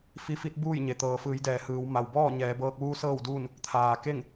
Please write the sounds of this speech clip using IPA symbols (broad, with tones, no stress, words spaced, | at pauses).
fi˧˥fi˧˥t̚buː˥˨jɲe˩ t̪ɤː˩fɯː˩˧jdɛː˩ hɯː˩˧wma˩w bɔː˥˨ɲɛː˩˧bɤː˧k̚ʋuː˧˥ sɤː˥˨wduː˥˨n | t̪ʰaː˩ke˥˨ŋ